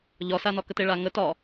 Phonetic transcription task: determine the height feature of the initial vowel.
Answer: low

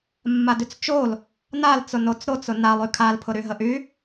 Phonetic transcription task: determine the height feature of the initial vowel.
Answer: low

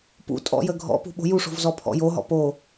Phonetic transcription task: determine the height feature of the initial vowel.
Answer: high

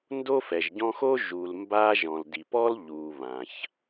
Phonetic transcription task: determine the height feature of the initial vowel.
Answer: mid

